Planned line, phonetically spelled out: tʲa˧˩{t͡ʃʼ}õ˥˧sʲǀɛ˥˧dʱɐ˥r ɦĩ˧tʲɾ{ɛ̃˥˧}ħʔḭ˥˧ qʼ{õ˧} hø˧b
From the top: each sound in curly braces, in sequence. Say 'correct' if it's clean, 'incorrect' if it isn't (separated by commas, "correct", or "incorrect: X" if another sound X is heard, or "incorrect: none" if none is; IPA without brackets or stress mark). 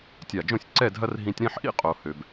incorrect: d͡ʒ, correct, incorrect: o˧